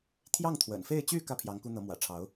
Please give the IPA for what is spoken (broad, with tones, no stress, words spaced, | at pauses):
t̪ʰjɑ˥˩ŋt̪ʰwə̰˨˩nfe˥˧ɪ̯t͡ɕy˥˧ kä˥˩pʰjɑ˧˥ŋ ku˥n̪ɤ˧˥ mwä̰˨˩ʈ͡ʂʰɑ˧˥ʊ̯